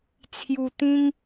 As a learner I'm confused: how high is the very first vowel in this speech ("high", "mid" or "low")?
high